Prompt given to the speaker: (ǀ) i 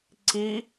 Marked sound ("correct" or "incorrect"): correct